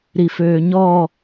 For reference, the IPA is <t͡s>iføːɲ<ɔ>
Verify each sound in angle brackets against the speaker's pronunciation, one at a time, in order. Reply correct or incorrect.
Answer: incorrect: ɾ, correct

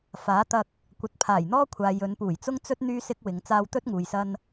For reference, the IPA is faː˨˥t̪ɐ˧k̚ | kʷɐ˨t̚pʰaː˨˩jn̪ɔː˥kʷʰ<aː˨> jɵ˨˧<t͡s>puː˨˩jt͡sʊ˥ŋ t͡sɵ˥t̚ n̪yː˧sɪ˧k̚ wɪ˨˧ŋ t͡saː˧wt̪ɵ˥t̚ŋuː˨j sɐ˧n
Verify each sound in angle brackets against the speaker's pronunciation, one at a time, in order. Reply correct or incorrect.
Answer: correct, incorrect: n

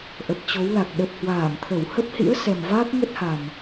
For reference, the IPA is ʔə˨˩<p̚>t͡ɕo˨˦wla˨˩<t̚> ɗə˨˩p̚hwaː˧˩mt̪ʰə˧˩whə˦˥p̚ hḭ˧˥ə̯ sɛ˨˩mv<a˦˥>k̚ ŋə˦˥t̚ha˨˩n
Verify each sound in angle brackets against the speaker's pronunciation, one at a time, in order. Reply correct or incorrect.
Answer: correct, incorrect: k̚, incorrect: aː˦˥

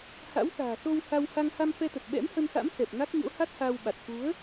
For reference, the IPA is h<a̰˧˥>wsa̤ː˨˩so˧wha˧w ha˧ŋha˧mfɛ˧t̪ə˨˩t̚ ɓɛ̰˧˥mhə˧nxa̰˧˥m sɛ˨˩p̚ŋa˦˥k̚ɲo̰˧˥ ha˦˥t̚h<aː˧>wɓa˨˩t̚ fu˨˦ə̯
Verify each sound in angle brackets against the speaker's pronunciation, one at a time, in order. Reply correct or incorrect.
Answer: correct, correct

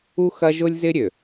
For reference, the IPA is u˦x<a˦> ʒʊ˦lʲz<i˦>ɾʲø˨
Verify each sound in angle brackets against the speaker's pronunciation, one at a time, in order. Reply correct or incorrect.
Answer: incorrect: ɐ˦, incorrect: ɪ˦

